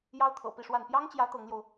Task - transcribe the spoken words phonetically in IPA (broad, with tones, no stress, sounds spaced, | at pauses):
j ɑ˥ ʊ̯ t̪ʰ ɤ̰˨˩ p i˥˧ ʂ w a˥˩ n p j ɑ˥ ŋ t͡ɕ j ä˧˥ t̪ ɤ˧˥ ŋ l j o˧ ʊ̯